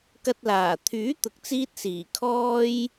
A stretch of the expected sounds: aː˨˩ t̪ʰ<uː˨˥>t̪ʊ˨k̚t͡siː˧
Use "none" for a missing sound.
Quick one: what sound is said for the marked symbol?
yː˨˥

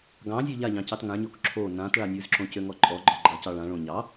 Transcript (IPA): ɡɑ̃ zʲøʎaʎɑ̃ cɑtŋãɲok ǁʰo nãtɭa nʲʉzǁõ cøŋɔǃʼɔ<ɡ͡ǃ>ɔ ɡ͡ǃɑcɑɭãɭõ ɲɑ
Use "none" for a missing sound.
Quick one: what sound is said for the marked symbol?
ɡ͡ǃ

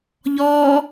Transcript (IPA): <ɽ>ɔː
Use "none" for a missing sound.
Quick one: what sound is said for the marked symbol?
ʎ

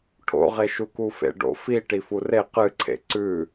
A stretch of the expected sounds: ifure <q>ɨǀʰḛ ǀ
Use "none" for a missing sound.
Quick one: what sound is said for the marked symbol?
q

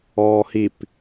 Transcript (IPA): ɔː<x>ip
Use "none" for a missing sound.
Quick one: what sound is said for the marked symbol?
h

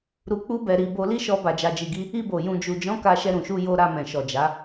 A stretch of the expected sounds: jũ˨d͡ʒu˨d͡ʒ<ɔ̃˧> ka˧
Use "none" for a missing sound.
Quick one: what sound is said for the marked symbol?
ɔ̃˨˦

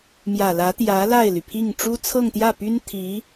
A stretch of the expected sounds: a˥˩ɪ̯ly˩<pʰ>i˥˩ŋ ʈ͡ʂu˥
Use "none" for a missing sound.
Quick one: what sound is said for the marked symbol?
pʰ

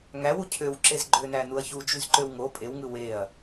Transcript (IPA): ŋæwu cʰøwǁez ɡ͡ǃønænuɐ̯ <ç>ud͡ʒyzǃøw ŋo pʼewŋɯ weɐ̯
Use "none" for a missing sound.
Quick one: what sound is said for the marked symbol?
ç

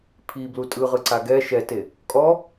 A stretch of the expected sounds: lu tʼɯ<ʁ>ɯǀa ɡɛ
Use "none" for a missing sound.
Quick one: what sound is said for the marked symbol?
ʁ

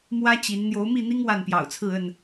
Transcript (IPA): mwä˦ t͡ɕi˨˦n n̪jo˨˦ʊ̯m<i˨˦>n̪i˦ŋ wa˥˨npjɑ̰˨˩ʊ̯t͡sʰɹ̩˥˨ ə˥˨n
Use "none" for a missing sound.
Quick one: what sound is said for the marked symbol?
i˥˨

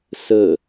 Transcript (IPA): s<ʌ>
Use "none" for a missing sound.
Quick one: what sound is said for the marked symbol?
ə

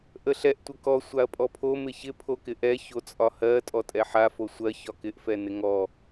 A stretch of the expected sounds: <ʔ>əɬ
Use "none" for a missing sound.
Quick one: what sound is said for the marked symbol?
ʔ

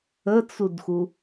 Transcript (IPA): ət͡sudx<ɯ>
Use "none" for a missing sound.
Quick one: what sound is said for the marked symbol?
u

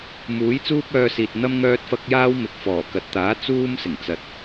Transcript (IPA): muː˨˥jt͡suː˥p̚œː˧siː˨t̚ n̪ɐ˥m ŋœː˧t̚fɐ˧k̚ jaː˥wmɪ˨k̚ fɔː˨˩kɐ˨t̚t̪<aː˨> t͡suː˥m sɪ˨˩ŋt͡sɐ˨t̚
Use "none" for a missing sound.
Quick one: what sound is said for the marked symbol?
aː˨˥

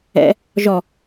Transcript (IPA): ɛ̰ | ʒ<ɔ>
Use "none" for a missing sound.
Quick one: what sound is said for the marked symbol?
ɔ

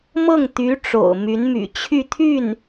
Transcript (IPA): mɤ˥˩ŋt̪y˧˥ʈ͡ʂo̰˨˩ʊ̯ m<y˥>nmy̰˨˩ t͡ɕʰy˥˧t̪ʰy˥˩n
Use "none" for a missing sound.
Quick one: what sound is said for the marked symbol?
y˧˥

